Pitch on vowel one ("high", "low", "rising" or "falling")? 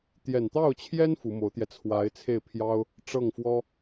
low